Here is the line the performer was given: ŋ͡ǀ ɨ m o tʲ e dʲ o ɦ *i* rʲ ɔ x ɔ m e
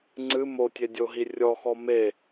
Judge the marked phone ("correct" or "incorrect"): correct